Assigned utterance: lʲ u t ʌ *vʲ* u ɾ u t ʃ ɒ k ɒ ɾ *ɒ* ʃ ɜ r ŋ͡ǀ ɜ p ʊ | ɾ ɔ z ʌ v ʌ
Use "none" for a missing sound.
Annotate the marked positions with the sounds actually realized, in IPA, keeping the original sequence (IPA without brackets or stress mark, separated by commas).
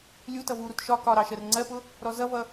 v, ɑ